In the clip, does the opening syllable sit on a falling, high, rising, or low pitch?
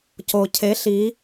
low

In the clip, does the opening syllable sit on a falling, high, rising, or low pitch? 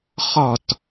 falling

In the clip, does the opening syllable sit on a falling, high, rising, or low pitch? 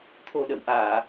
low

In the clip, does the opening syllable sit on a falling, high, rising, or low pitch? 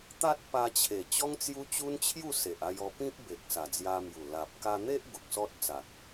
high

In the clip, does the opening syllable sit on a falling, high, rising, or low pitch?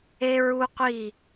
high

